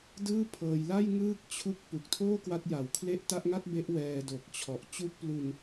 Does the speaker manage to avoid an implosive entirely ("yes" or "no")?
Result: yes